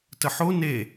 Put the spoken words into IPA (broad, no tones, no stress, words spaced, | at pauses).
təħo ne